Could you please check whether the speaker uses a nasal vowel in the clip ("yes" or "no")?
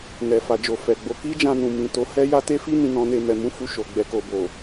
yes